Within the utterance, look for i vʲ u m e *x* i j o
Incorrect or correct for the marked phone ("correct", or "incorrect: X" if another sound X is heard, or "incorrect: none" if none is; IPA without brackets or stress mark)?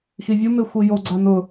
incorrect: xʷ